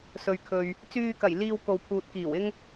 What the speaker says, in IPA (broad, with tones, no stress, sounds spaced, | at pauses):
s ɵ˨ ɥ kʰ ɵ˨ ɥ | t͡s yː˧ k ɐ˨˩ j l iː˧ w k o˨ w pʰ uː˨ t̚ k iː˨˩ w ɪ˥ ŋ